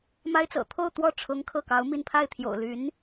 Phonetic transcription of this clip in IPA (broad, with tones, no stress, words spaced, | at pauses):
ma˥ɪ̯t͡sɤ̰˨˩ t̪ʰo˥˧ʊ̯t̪wɔ˥˩ ʈ͡ʂʰʊ˧˥ŋ kʰɤ˥˩kɑ˧˥ʊ̯mi˥˧n pʰa˥˩ɪ̯t̪ʰjo̰˨˩ʊ̯ly˧˥n